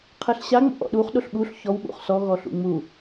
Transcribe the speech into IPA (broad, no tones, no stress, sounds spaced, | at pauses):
qʰ ɛ ɬ ɕ a ŋ͡m o̰ ʔ ɔ̰ ɗ u χ ɗ o ɬ ɓ u ɬ ç ɔ w ɓ ṵ χ s ɔ ɣ ɔ ɬ ṵ ŋ͡m u